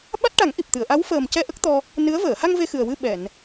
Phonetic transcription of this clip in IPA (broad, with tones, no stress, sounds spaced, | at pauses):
ɓ a˦˥ t̚ ʈ a˨˩˦ ŋ ʔ i˨˩ p̚ t̪ ɨ˨˩˨ ə̯ ʔ a˧˥ w f əː˨˩ m c ɛ˧ ʔ ə˦˥ k̚ t̪ ɔ˧ | n ɨ˧˥ ə̯ v əː˨˩˨ h a˧ ŋ v e˧ x ɨ˨˩ ə̯ w ɨ˧ ɓ ɛ˨˩˨ n